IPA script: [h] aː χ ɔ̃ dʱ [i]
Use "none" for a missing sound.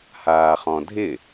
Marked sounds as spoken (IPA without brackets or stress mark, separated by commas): h, ɪ